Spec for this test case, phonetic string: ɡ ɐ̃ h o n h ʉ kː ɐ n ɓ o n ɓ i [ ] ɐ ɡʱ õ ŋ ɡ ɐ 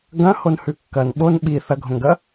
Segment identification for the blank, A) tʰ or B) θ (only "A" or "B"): B